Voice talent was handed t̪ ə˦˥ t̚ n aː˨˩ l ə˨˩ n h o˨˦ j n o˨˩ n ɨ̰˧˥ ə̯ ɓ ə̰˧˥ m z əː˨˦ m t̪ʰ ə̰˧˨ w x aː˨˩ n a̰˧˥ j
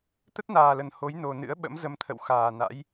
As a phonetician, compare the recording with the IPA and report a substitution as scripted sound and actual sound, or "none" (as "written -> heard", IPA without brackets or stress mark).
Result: əː˨˦ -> ə˨˦